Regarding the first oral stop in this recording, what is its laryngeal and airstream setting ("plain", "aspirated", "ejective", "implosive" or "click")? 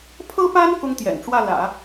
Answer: aspirated